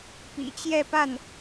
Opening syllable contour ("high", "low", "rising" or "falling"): low